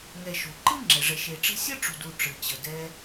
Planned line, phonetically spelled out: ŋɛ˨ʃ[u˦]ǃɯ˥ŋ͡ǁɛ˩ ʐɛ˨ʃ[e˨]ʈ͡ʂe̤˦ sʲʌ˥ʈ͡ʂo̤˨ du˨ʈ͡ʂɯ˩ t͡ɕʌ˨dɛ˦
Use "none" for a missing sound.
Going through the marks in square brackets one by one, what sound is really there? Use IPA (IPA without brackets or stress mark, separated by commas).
u˩, e˨